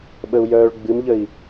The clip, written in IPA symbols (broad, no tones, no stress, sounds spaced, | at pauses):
ɓ ə u̯ j œː ɭ ɡ͡b ɨ m ʎ ə i̯